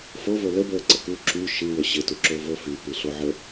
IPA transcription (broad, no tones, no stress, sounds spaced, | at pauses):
f o v o l ə b əː ǀ ə k u ǁ y ʃ ɨ w ə ɕ ɪ t u ǁ o v o f y p ɨ ɬ o ʕ ə